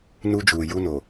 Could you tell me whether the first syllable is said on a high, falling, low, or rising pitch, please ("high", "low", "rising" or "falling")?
high